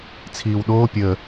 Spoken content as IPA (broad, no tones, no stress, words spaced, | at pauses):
t͡sʰiːwɗoː pʲə